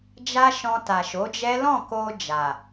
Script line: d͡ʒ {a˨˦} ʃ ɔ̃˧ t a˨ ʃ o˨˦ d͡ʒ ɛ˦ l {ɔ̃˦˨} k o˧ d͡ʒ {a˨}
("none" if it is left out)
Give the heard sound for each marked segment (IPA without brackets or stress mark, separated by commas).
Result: a˧, ɔ̃˦˨, a˨